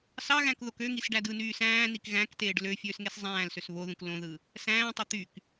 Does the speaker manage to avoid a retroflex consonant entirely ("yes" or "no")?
no